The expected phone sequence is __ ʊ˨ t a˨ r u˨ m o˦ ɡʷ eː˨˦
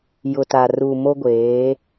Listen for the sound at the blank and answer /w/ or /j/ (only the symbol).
j